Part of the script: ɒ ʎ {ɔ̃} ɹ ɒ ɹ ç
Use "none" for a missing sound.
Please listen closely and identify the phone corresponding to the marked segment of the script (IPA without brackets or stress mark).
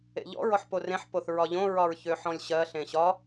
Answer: õ